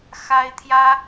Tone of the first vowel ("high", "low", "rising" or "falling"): high